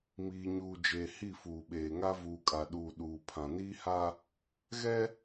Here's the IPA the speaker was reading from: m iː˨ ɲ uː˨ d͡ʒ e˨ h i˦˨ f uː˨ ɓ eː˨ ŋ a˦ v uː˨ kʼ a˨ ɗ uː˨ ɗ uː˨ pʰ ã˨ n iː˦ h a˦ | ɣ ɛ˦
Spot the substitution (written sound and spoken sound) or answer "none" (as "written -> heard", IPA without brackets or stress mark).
none